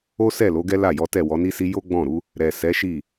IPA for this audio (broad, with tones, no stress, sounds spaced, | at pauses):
o˦ s ɛ˦˨ l o˨˦ ɡ ɛ˦ l a˦˨ j ɔ˨˦ t ɛ˦˨ w ɔ˨˦ n i˦ s i˦ j o˦ ɡ͡b ɔ̃˦˨ ɾ u˨˦ | ɾ ɛ˨ s ɛ˨˦ ʃ i˦˨